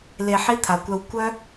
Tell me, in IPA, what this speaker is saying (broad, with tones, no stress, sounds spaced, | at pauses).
l e˧ ħ i˦ t̪ʰ a˨ kʷ œ˧ w kʷ œ˦